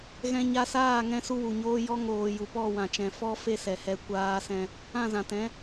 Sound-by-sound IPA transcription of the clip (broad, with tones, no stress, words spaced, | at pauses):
ɣɛ̃˧ɲa˧saː˦˨ŋɛ̃˧ su˦wu˨ɲoː˦ jɔ˧ŋoː˨ ju˨pɔ˦˨wã˨t͡ʃɛ̃˨ fɔ˦ fe˦sɛ˨hɛ˧ kʷaː˧sɛ̃˧ | ã˦˨zã˨tɛ̃˨˦